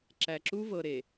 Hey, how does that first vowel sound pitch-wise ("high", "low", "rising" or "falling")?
low